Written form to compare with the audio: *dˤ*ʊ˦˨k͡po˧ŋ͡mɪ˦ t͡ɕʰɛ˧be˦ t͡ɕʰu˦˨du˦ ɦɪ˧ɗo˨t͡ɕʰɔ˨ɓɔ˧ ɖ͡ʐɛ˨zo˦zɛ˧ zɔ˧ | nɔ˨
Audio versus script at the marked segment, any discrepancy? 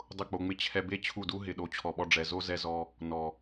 no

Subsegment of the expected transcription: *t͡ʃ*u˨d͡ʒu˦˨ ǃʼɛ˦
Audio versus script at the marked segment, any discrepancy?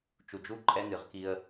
no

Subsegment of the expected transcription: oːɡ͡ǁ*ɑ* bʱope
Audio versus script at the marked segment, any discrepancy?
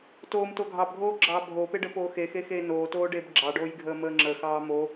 yes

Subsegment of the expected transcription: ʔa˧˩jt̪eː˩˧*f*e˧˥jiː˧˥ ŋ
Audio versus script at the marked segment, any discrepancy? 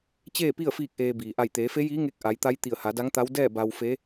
no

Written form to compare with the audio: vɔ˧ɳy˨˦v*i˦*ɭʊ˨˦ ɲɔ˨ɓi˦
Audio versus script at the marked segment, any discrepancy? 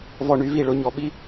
yes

